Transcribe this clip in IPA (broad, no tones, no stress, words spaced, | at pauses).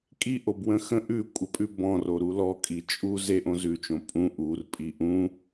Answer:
kʼiʔobwə̃ xə̃ ʔʉkʷʼəpʼʉ bɔ̃roɾu lɔkʼi t͡ʃʼu zeʔõ zʉt͡ʃõ pʼũ ʔurpʼi ʔũ